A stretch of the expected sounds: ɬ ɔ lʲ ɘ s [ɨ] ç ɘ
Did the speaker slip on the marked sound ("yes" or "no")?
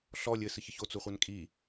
no